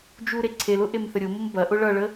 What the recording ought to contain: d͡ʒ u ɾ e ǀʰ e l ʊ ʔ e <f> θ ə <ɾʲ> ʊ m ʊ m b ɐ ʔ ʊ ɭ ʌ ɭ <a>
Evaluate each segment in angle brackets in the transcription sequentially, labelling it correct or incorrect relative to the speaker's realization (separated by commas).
incorrect, correct, incorrect